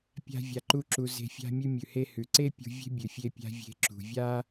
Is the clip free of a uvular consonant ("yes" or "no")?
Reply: yes